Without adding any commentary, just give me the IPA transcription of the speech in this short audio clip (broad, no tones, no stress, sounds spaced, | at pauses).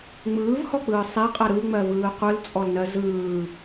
ŋ͡m ɯː v h ɔ k͡p ɯː sˤ e qʼ ɜ ɾ ɯ ŋ͡m ɜ v ɯː qʷ ɯ l t͡sʼ ɔ l n ɜ z ɯː